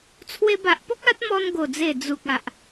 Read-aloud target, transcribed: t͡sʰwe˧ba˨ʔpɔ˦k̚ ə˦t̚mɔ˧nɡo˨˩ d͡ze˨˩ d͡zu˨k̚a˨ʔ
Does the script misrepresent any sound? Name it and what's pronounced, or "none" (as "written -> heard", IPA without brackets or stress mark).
ə˦ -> a˦